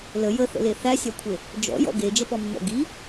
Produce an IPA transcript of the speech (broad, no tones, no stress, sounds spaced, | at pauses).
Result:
l ə j ə θ ə̰ l e θ æ sʲ æ kʷʰ e | d͡ʒ ɔ̰ j ɔ̰ ɡ e d͡ʒ ə p ɔ mː ɔ̰ ɡ i